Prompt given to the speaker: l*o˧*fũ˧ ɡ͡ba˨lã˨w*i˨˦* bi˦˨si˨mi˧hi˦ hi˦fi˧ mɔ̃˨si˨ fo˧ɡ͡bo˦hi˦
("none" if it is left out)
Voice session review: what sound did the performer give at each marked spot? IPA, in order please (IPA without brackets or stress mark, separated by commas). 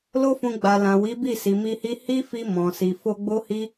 o˦, i˨˦